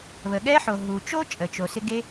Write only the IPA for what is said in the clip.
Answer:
β ə˩ ɠ ɛ˥ ħ o˩ ɦ u˩ t͡ʃ o˥ t͡ʃʼ ə˩ t͡ʃ o˩ s ɪ˥ ɡ e˥

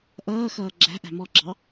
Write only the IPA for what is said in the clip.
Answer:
ʔ ʌː x ʌː ɡ͡ǁ æ̤ ʔ æ̤ m ɔ ɡ͡ǁ ɑ

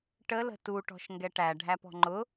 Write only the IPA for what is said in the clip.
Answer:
ʈ ə l ə̤ t u ʈ ɔ̤ ʃ ŋ ɡ ɛ ʈ æ ɖʱ æ p ɔ̤ ŋ͡ǃ ʊ

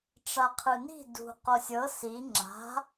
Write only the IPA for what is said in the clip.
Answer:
ʈ͡ʂ a qʰ ɯ n i̤ d ṳ q o sʲ ɤ s i ŋ͡ǁ a̤

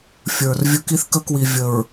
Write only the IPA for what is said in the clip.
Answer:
fʲ ə˞˨ r vʲ ɵ˦ k i˦ θ k ə˦ k w i˨ vʲ ə˨ ɹ

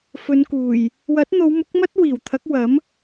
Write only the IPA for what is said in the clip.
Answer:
f ɵ˨˧ n k uː˨˩ j | w ɐ˨˥ t̚ n̪ o˨˧ w m ʊ˨˥ k̚ m ɐ˥ t̚ w iː˨˩ w t̪ʰ ɐ˨˥ k̚ w ɐ˨˥ m

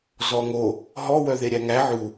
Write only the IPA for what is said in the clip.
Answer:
z ɔ ŋ o | ɦ ɔ w œ ð e ɾʲ æ ŋ æ ʕ u

